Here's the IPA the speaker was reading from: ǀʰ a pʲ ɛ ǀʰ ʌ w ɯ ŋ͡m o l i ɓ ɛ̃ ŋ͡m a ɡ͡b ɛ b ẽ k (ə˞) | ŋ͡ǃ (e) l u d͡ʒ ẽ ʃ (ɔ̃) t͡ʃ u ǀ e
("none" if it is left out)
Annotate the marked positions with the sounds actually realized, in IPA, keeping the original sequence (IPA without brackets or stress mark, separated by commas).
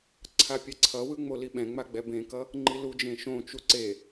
ʌ, i, õ